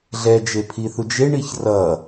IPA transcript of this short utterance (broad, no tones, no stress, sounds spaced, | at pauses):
ɮ ɛ d͡ʒ e pʰ i θ u d͡ʒ e ɳ i ç r ʌ